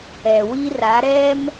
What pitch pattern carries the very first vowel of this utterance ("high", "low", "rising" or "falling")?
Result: low